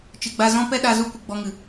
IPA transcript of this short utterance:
t͡ʃɨ˨ɡ͡ba˧zɔ̃˦ pɛ˦ɗa˧zu˦ kʷɨ˨ɡ͡bɔ˧ŋɨ˨

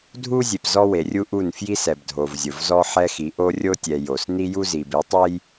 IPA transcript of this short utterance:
dʱu˦zʲe˨p zɔ˦we˨rʲu˦ʔu˦˨n fji˦sɛ˨b dʱo˨vzʲʊ˨vzɔ˦ ħɛ˦xi˨˦ ʔo˦rʲo˦tʲɛ˨ jo˨s ni˦ju˦zi˨b i˨˦tˤɛ˦j

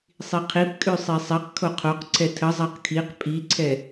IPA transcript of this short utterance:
sˤiqʰip kʼʉsˤisˤɛq kʰoqʰoq ǀʰɛtʰə zˤaqkʰiq pʼiǀʰɛ

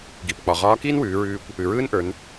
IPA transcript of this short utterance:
ɡi˩pk͡pɒ˩ʁɒː˧˥kiː˥n wʉː˩˧ɹʉː˧kʷ | ʉ˩ɹɯː˥nʔə˞˩˧n

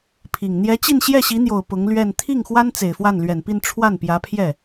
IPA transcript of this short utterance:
pʰi˨˩ŋ n̪jɛ˧˥t͡ɕi˥˧n ɕjɛ˥˩ɕi˧˥n̪jo˨˩ʊ̯ pʊ˧˥ŋ lɥɛ˥˧n t̪ʰi˥˩ŋxwa˥n t͡se˨˩ɪ̯fwa˥˩nlɥɛ˨˩npi˥˧n ʈ͡ʂʰwa˥˩npjä˧˥pʰjɛ˥˩

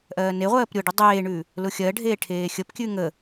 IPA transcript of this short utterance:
ʔɜːneʁʷɜːp ɾʲʊɖʉ dˤeːɳʉ | lʊxʲɜɖʱeː ʈʰeːxʲəpkʲʉ ŋə

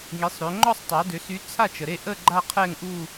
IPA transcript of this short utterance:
ŋi˩˧sˤɾø˩˧ ŋ͡ǃɔ˥˧sˤtˤa˩˧dø˩˧ sy˨˥t͡sʰa˥˩t͡ʃə˩ɾe˥˩ ʔə˥˧ ɡ͡ǃa˥˧qʰɛ˥˧ŋʔu˥˧

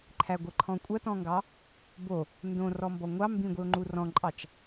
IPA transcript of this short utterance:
ǃʰæɡʷə ǃʰɔ̃kʷʼɐtɔ̃ŋɡɑ | bo | ndõ rɔmbɔŋʷɑ mbĩɡʷio̯ŋ͡ǃu rɔ̃ǃʼɑt͡ʃ

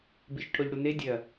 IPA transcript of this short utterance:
biʃʈʰoʎɽune dʲɐ

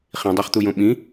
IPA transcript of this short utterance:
χĩdˤaχt̪ujõ ɓĩ

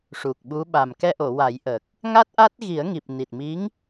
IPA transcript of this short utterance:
ʂu˨˩k̚ɓu˧˥ɓa˨˩m kɛ˧ʔo˨˩˨wa˨˩˦jʔə˨˩k̚ | ŋa˦˥t̚ʔa˦˥t̚ɣi˨˩˦ə̯ŋi˨˩p̚ ni˨˩t̚mi˧˥ŋ

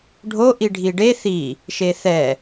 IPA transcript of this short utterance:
ɖʱo ʔiɖʱiɖe θi | ʃeθɛ

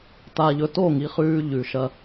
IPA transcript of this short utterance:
ta˨ʎɵ˨ to˦˨ŋi˨χʉː˧ ʎʉ˨ʃɐ˧

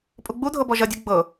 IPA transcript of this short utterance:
pʼuɡ͡budʱɤ bɔʒɐdʲu ɡ͡bɤ

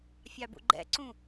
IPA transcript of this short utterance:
fʲɑbṵɡ͡ǃɛ̰ǀũ

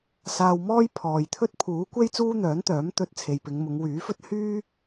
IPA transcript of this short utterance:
saː˧wmɔː˥j pʰɔː˨jt̪ʰɵ˥t̚ pʰuː˨˥kʷe˥j t͡suː˥n̪œː˨˥nt̪œː˨˥m t̪ɵ˧t̚ t͡sʰe˨jpɪ˨˧ŋmʊ˨˧ŋ wyː˨˥fɵ˥t̚ hyː˥

